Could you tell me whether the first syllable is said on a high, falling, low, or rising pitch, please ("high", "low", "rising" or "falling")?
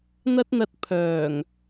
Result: high